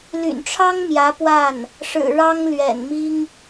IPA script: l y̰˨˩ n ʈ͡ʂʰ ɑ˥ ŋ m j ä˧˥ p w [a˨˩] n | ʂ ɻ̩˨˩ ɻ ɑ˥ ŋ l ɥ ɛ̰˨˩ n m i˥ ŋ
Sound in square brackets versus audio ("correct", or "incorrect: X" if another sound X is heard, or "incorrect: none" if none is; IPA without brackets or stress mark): incorrect: a˥˩